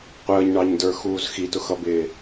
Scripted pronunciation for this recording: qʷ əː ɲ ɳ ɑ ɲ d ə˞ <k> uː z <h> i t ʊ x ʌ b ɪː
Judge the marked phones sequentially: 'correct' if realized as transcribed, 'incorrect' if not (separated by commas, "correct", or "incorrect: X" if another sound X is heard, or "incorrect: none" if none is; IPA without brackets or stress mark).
incorrect: x, incorrect: x